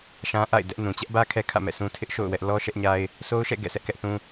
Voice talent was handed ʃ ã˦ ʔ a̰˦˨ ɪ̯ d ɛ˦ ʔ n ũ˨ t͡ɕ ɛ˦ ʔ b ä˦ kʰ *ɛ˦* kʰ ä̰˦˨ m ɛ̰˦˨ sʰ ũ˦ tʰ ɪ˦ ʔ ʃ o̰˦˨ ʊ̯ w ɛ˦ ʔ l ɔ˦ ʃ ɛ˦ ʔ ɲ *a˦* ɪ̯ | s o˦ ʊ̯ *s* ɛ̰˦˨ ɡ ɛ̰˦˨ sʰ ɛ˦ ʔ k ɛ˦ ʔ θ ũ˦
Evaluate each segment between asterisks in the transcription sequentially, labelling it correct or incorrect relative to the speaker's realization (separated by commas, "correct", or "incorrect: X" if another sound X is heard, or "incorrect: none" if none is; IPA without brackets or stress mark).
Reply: correct, correct, incorrect: ʃ